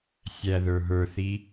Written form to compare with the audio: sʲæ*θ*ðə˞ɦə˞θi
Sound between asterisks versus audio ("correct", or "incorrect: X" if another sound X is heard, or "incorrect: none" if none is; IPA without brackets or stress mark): incorrect: none